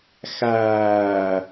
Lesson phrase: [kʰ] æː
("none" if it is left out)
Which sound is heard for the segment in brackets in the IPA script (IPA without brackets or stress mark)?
x